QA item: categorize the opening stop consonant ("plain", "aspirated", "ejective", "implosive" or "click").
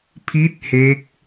aspirated